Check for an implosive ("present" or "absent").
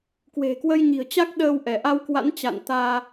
present